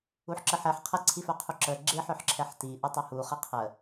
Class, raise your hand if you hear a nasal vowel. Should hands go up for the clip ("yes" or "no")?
no